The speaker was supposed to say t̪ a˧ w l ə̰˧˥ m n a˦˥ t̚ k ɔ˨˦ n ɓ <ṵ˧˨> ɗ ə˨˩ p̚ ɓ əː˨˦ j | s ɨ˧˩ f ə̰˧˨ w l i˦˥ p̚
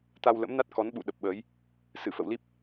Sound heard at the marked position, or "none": ṵ˧˨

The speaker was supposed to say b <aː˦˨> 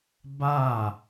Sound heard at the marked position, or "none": aː˦˨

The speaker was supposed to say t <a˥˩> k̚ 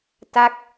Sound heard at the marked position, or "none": a˥˩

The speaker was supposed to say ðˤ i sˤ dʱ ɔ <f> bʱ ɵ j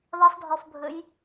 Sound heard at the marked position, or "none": f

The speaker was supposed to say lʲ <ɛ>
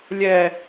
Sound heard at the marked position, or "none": ɛ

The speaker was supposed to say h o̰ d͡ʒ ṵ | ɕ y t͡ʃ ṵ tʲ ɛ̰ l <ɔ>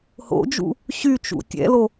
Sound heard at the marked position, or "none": o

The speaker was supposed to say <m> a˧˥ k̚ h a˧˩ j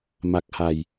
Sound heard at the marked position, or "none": m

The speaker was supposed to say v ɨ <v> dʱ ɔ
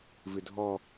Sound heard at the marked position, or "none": none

